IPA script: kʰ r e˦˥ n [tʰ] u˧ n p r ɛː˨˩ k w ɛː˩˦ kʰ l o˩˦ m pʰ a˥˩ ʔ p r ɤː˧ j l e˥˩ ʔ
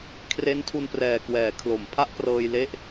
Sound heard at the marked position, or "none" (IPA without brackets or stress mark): tʰ